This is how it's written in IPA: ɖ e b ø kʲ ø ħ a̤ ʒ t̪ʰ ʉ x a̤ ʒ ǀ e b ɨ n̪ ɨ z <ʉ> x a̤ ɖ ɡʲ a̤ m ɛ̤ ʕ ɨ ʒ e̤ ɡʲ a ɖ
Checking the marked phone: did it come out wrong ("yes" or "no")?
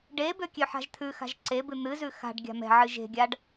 no